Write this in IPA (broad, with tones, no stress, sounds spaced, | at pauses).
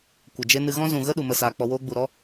kʷ ə˨ d͡ʒ e˦ n ɨ˧ ɣ ɔ̃˦ z ũ˨ ɣ ə˦ ɗ u˨ m ə˧ s aː˨ k͡p ɔ˧ w oː˦ ɡ͡b u˨ ɾ ɔ˦